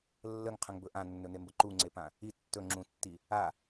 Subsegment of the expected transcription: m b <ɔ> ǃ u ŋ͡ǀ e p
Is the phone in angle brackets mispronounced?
yes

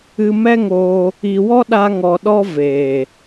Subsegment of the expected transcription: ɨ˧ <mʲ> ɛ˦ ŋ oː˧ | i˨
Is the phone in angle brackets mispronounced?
yes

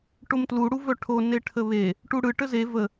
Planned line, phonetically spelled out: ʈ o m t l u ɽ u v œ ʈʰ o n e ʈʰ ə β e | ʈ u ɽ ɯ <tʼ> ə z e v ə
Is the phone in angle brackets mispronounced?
yes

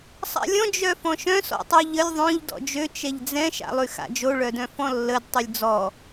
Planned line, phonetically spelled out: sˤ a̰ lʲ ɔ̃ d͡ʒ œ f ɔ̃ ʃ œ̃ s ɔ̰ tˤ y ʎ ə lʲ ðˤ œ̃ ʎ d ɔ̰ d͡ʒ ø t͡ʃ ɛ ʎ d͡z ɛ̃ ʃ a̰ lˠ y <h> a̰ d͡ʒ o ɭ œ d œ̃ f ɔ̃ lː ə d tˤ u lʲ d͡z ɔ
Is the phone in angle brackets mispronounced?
yes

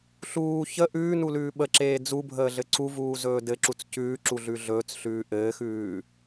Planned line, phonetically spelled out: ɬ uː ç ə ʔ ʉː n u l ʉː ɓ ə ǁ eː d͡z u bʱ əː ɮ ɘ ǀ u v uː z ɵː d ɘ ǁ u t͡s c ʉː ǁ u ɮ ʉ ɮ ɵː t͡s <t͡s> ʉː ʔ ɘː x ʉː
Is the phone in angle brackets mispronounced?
yes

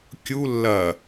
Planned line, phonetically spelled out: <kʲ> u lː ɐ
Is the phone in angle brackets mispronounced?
no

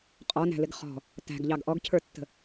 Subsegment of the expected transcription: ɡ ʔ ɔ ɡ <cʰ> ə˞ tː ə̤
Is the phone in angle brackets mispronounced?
no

